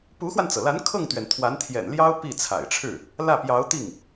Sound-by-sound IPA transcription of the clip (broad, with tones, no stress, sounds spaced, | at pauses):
p u˧˥ x w a˧ n t͡s ɤ˩ l a˧˥ n kʰ ɤ˥˩ ŋ t̪ ɥ ɛ˩ n t̪ʰ w a˧˥ n t̪ʰ j ɛ̰˨˩ n l j ɑ˥ ʊ̯ p i˥˩ t͡sʰ a̰˨˩ ɪ̯ ʈ͡ʂʰ ɻ̩˥˩ | l ä˥˩ p j ɑ˧˥ ʊ̯ t̪ i˥˩ ŋ